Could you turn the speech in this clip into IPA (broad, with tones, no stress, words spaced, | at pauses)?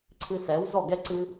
ǀʰɨ˧ sɛ˨˦wzɔ˦˨ɡɛ˦ ǀɨ˦